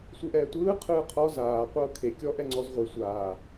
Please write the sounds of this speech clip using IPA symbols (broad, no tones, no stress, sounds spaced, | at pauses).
sʷ ɯ ʔ ɛː tʷ ɯː qʰ ɯː qʰ ɔ z aː qʷ ɤː kʰ e kʲ ɔ ʔ ɛ ŋ͡ǀ ɔ z ʁʷ i sʷ aː